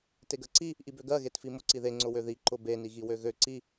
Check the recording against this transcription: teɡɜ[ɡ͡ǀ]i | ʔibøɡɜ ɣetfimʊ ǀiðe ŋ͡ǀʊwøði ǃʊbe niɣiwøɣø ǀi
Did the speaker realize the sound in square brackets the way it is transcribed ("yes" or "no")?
no